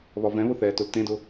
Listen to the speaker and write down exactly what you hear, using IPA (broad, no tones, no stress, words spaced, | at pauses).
βɒvɛ̃βʊ θɛtʊl tẽdʊ